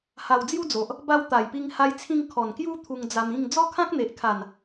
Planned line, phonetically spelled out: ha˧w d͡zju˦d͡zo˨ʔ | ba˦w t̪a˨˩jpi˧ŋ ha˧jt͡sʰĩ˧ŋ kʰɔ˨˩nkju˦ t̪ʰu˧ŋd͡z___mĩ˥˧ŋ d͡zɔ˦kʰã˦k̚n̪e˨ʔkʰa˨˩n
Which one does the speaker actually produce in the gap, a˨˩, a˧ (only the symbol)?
a˧